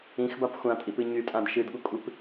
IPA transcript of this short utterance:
ĩ x b a p xʷ ã tʼ i p ɨ ɲ y tʼ ã d ʃ ɨ d ɠ u kʷʼ ɨ p

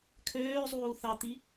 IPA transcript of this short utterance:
kʰ øː zˤ uː θ ɑ t̪ i

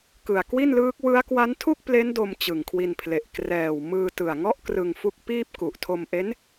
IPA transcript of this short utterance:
k ɯ˨˩ a̯ k w i˥˩ n l ɯː˦˥ k̚ w ɯ˦˥ a̯ k w a˦˥ n tʰ u˥˩ k̚ p l e˦˥ n d o˧ m t͡ɕ ɯ˨˩ ŋ kʰ w i˧ n pʰ l e˨˩ ʔ k r ɛː˨˩ w m ɯː˧ t ɯ˨˩ a̯ ŋ ɔ˥˩ ʔ k r ɯ˧ ŋ f u˦˥ k̚ p iː˥˩ p̚ k u˨˩ ʔ tʰ o˧ m ʔ e˦˥ n

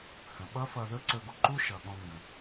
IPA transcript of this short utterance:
h ə̃˨ ɓ ʌ˦ f ʌ˧ ð ɵ˦ ǀ ɵ˧ ɡ u˨ ǃ u˦ ʃ ʌ˨ ɠ ɔ̃˧ ŋ ɡ ə̃˨

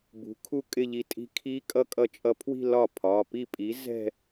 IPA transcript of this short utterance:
b ṳ˨˥ kʰ u˥˧ kʼ ɪ˥˧ ʎ i˧ tʼ i̤˦˥ kʰ i˦˥ kʼ ʌ˦˥ kʼ ʌ˧ t͡ʃʼ ʌ˧ pʰ w i̤˥˧ l ɒ˥˩ pʰ ɒ˩˧˩ p i˥˩ pʼ i˨˥ z ɛ̤˥˧

